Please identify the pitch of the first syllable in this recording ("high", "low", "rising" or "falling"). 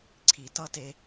low